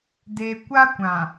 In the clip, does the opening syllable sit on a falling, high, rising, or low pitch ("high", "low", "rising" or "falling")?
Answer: low